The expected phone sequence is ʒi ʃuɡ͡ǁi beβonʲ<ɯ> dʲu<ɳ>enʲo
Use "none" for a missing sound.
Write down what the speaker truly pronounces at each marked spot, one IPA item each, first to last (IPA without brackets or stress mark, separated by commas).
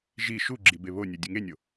u, ŋ